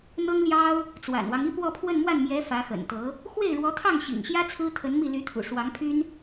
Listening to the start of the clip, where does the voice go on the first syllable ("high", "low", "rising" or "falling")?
high